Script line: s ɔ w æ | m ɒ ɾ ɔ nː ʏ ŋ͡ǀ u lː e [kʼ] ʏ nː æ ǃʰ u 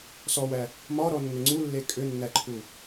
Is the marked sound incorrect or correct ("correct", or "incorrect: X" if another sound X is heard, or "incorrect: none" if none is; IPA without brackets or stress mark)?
correct